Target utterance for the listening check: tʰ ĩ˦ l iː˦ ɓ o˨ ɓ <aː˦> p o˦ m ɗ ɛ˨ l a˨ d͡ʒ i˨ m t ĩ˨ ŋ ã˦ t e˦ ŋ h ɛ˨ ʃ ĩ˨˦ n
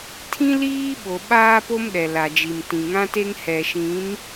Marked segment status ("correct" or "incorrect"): correct